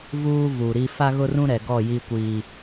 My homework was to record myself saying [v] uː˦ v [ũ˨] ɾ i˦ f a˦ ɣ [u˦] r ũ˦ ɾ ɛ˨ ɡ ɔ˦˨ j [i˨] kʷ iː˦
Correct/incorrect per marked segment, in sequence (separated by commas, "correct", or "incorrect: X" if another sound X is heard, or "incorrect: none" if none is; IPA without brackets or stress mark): correct, incorrect: u˨, incorrect: ʊ˦, incorrect: i˦